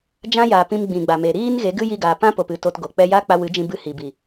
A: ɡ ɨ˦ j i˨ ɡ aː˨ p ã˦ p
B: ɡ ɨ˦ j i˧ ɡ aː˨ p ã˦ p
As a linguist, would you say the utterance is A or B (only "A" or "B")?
B